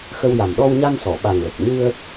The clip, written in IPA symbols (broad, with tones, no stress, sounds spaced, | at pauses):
x ə˧ w j a˨˩ m ɗ ɔ˧ w ɲ a˧ n s ɔ˨˩˨ ɓ a˨˩ ŋ l ə˨˩ k̚ ɲ ɨ˧ ə̯